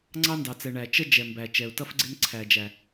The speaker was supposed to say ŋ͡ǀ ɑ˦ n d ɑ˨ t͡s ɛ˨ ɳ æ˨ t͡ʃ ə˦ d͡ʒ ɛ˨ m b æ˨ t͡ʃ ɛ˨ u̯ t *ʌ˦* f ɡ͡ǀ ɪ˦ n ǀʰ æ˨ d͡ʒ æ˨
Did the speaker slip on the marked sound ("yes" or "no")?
no